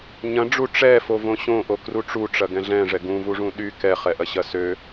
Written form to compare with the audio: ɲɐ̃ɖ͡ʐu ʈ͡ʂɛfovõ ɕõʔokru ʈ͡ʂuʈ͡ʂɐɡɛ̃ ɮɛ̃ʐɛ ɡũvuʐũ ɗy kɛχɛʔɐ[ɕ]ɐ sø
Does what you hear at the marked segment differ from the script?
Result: no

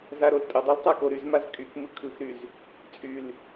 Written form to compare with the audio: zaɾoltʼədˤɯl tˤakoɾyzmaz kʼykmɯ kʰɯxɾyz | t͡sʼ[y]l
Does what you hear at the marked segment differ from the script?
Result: no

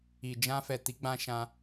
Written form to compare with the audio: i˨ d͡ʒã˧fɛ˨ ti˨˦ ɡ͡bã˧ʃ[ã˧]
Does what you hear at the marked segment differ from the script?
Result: no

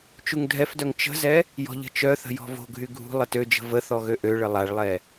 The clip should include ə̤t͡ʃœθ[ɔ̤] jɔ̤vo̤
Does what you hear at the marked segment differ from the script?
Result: yes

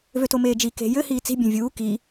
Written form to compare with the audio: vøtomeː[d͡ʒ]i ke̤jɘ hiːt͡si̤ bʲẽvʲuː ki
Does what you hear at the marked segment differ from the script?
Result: no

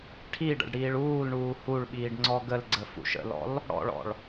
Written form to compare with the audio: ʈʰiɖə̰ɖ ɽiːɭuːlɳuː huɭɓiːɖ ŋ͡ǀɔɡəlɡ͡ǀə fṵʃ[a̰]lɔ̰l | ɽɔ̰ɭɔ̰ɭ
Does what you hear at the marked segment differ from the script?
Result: yes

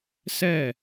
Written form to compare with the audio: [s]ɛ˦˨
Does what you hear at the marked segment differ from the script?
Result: no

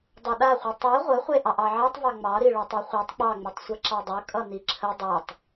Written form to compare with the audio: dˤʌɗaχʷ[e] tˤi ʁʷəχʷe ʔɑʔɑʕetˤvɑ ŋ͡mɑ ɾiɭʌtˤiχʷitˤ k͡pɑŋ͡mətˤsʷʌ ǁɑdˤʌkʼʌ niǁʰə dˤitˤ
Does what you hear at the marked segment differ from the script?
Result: yes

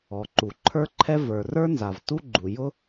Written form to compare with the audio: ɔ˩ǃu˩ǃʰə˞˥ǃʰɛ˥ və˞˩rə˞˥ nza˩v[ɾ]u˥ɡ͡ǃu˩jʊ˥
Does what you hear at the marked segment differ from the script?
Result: yes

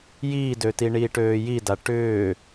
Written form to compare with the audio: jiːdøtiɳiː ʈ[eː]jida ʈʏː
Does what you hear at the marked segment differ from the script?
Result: yes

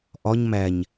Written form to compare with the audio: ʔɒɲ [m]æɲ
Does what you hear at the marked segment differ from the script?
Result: no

